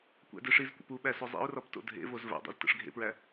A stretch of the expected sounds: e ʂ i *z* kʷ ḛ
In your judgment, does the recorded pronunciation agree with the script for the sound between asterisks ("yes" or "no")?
yes